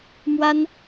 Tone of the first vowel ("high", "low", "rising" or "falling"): high